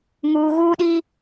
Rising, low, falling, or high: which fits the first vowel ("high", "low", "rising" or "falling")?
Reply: low